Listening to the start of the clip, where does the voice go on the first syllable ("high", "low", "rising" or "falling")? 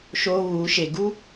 high